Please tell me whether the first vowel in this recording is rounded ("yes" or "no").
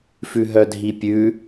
yes